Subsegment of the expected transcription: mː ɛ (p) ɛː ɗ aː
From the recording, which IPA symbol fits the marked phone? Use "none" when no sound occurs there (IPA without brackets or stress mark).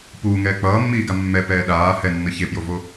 p